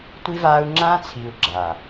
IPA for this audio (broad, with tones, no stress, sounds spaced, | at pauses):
tʷ i˦ v aː˦ u̯ ŋ͡ǁ ãː˦ t͡sʰ iː˨ u̯ ɡ͡ǁ a˨